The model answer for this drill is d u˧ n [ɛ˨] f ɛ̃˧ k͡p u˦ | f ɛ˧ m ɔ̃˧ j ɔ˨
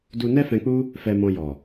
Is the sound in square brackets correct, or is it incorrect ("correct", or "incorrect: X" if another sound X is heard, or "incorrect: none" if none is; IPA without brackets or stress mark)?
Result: incorrect: ɛ˦